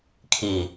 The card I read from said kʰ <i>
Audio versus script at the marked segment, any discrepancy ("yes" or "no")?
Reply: no